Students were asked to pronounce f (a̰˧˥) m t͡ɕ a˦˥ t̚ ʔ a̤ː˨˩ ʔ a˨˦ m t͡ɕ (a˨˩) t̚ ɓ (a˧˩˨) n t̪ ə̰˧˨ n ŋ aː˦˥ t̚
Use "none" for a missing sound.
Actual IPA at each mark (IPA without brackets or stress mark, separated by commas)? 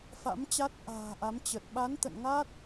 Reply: a̰˧˥, ə˨˩, a˨˦